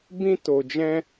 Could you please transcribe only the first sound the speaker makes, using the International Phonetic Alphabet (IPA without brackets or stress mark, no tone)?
b